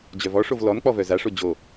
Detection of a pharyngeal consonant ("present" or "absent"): absent